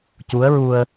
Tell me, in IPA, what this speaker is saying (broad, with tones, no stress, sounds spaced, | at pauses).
c u˧˥ ə̯ ɹ u˧ ə̯